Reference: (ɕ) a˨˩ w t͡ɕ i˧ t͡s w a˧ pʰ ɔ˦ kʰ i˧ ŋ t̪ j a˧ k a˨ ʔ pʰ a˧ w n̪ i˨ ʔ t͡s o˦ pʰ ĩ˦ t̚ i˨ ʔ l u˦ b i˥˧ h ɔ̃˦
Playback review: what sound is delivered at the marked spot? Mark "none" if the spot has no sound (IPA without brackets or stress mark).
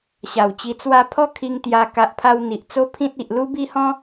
ɕ